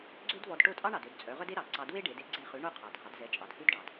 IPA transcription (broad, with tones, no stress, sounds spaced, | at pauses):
ɡ͡ǀ ø˥ d v ɔ˧ d ʈ o˥˩ tʼ ɑ˥ ɳ ɑ˩ d ø˥˩ d t͡sʼ œ˩˥ ʁ œ˥ d e˥ ɾ ɑ˩ ǀ ɑ˧ d w e˥ ɖ e˩˥ d e˥ ɡ͡ǀ e˥˩ χ ʉ˩˥ ɳ o˥˩ qʰ ɑ˩ dʱ ɑ˩˥ d z ɛ˩˥ t͡ʃʼ ɑ˩ d h ʉ˥ d ɖ ɑ˩ d